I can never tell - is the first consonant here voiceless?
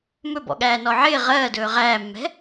no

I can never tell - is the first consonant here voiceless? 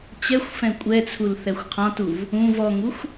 yes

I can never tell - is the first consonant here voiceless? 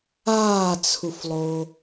yes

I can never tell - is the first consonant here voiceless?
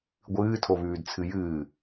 no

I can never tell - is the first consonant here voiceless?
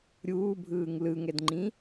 no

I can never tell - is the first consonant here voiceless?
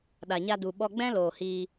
no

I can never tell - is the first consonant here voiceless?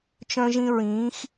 yes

